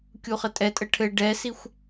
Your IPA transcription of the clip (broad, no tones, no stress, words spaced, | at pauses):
kʲuχətʼɛtʼə ʈʰɘ ɖɛsixʷ